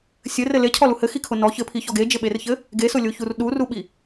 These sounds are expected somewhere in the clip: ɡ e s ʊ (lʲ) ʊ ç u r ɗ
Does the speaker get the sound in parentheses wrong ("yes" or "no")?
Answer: no